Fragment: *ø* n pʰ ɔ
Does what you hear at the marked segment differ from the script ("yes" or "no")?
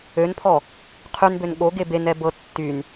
no